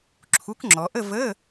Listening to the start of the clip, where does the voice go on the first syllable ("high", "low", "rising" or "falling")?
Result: rising